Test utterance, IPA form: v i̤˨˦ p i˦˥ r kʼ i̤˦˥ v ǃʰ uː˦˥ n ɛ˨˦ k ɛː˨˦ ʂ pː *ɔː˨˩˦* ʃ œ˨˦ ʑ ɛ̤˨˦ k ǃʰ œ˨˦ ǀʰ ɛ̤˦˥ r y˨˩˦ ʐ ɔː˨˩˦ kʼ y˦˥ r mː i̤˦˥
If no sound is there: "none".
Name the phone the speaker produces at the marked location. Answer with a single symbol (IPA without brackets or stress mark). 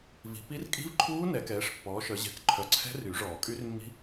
ɔː˨˦